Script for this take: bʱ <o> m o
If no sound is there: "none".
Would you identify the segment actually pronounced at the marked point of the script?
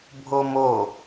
o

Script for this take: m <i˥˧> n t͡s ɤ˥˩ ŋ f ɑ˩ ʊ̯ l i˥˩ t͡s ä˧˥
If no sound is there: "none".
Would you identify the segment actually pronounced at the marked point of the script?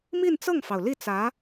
i˥˧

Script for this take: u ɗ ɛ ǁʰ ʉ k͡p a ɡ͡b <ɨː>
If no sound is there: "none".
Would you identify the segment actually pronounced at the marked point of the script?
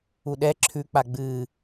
ɨː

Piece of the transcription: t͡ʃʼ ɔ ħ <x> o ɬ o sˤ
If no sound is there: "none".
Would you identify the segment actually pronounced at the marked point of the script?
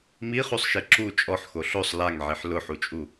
x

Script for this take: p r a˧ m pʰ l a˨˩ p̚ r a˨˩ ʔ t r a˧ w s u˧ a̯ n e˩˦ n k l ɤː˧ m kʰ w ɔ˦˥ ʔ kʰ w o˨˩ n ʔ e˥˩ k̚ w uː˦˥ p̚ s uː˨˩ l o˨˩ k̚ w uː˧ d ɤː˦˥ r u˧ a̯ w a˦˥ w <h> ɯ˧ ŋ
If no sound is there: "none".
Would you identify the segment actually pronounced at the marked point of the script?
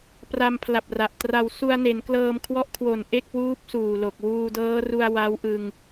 ʔ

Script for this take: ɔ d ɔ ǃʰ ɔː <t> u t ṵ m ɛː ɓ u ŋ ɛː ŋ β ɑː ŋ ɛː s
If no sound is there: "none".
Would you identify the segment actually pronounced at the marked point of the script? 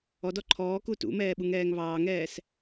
k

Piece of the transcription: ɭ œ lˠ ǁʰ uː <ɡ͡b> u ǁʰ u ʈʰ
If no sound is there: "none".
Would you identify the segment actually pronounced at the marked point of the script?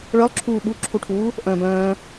ɓ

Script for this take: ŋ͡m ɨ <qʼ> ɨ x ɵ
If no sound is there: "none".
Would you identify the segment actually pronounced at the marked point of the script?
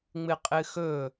qʼ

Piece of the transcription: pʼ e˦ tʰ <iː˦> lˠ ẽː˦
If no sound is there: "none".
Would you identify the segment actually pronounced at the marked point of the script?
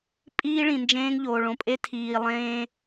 iː˨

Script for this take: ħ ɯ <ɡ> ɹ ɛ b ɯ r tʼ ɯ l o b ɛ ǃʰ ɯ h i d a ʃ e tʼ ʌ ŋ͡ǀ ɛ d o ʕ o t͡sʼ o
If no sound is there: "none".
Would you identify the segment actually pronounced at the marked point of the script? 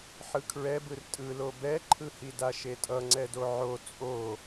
kʰ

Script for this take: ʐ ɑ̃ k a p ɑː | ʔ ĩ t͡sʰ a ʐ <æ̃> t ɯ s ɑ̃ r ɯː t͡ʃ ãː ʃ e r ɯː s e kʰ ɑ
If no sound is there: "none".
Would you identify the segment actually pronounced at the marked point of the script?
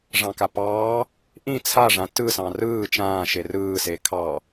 ã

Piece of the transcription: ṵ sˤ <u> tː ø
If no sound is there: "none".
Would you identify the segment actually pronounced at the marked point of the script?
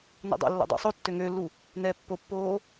o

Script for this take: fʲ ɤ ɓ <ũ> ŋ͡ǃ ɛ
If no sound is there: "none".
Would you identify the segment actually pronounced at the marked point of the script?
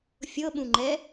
ũ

